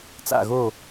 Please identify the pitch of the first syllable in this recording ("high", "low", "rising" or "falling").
falling